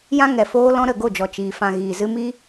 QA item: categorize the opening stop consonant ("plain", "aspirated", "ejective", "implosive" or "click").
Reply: plain